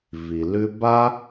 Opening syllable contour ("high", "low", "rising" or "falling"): low